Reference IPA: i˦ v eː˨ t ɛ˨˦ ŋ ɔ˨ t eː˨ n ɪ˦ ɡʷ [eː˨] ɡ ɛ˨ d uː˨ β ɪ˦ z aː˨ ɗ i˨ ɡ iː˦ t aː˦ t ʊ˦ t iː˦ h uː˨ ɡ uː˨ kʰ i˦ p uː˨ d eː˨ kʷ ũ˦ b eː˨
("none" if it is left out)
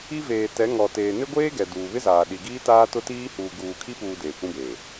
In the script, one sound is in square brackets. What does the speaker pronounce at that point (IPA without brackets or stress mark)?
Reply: eː˦